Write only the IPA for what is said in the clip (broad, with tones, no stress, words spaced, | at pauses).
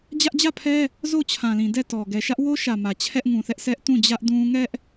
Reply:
d͡ʑä˦ʔd͡ʑä˦˨pʰɛ˦ | zo˦˨t͡ɕʰã˨lĩ˨ dɛ˦˨tɔ˨ ɡɛ˨ʃä˦ʔwo˦ʃä˨ mä˨t͡ɕʰɛ˦ʔŋũ˨θɛ˦ʔ sʰɛ˦ʔtũ˦˨d͡ʑä˦ʔ dũ˦ ŋɛ˦ʔ